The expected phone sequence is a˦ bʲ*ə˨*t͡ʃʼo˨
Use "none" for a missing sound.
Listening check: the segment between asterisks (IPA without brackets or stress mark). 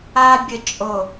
ə˨